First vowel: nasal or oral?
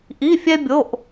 oral